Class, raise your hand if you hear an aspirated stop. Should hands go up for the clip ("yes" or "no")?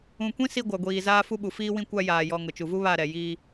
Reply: no